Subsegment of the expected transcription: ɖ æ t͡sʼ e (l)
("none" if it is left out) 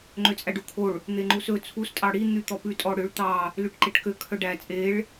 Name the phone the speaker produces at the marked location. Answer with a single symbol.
ɭ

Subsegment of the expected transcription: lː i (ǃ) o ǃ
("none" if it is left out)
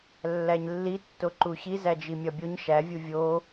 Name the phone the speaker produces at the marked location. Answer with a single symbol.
tː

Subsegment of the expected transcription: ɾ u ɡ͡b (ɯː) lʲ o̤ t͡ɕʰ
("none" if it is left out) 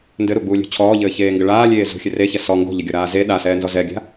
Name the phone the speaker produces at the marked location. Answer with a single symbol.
uː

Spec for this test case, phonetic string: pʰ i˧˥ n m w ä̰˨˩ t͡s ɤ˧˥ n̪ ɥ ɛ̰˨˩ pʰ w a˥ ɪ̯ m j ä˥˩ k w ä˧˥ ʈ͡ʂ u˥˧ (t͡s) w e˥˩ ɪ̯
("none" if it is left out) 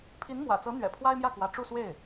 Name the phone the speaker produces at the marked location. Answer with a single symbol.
s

